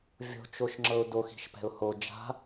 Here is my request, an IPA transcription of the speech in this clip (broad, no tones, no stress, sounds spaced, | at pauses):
vʲ o̤ t͡ʃ o ʃ ŋ͡ǁ ɤ ʊ̯ d o x i̤ ʃ p ɛ̤ ʊ̯ h o d͡ʒ a̤